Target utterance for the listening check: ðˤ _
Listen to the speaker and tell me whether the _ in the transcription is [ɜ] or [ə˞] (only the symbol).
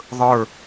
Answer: ə˞